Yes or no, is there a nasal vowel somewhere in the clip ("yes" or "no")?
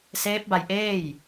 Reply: no